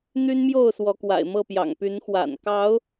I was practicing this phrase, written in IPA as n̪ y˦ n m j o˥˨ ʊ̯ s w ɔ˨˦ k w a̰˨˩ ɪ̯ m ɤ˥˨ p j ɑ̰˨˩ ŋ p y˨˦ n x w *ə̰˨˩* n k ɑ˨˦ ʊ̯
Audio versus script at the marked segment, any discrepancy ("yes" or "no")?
yes